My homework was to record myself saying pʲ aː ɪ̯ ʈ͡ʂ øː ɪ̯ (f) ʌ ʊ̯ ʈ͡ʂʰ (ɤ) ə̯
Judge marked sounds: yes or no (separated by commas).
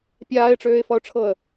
yes, yes